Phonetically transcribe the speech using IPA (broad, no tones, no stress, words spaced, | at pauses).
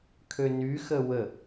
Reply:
kʰønyxə wə